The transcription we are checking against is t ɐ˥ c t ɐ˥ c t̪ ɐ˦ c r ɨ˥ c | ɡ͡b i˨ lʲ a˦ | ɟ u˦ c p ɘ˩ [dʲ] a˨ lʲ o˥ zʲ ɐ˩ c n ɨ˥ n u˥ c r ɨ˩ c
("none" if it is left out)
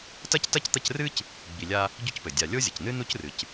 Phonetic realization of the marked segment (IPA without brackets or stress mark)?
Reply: dʲ